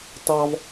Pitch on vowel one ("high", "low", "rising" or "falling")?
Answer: high